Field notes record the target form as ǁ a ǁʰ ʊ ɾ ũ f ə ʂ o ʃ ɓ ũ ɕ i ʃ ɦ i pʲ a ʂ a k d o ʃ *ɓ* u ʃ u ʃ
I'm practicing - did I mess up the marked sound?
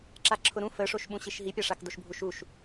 yes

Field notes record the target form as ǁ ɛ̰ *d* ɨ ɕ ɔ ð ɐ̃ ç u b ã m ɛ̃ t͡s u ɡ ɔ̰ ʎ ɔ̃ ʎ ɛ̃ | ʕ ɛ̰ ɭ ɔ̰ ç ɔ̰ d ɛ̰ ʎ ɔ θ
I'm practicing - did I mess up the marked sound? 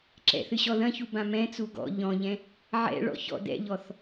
yes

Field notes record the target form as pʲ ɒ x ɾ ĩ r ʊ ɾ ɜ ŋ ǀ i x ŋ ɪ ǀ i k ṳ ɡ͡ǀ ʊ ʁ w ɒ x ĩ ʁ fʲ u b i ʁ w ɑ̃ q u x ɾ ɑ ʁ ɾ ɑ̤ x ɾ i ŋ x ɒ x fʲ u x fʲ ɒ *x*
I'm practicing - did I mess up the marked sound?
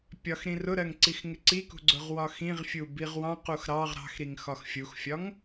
yes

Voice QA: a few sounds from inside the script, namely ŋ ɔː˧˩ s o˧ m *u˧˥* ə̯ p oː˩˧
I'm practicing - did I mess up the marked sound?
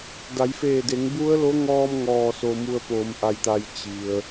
yes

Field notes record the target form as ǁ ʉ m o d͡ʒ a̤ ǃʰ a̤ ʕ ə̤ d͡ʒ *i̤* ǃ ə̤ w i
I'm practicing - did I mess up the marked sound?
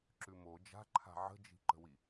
no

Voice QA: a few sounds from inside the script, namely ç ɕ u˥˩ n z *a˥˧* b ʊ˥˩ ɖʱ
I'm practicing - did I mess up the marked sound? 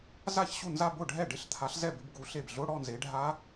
no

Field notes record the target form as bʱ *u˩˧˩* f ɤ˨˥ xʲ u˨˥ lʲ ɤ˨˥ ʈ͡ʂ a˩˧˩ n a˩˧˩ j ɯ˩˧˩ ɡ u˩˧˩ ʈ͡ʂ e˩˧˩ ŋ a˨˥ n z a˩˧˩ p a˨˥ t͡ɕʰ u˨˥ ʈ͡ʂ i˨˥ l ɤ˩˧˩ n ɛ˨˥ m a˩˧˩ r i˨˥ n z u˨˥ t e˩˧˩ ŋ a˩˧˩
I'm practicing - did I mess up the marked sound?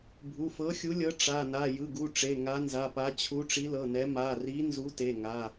no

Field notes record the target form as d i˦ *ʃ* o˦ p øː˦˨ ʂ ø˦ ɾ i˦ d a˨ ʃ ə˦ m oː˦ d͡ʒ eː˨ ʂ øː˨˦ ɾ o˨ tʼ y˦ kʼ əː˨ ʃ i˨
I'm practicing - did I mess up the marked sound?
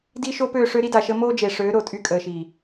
no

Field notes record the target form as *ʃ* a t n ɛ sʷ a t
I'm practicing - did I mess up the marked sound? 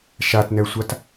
no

